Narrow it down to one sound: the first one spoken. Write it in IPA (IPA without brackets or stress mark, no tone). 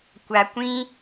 kʷ